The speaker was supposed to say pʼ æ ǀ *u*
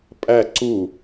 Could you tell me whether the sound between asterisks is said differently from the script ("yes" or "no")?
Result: no